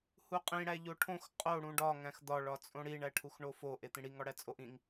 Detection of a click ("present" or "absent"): absent